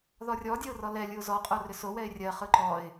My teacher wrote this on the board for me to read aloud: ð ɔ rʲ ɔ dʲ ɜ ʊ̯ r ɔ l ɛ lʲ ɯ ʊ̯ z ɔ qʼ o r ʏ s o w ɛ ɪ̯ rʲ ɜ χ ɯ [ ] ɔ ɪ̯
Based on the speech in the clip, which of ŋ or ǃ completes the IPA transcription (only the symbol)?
ǃ